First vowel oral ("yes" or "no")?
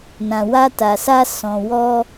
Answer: no